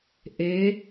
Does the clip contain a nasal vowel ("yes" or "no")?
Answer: no